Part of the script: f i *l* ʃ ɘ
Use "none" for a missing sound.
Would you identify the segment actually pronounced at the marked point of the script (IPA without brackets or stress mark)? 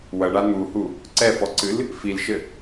l